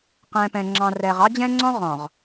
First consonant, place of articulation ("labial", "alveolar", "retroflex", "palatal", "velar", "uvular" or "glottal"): uvular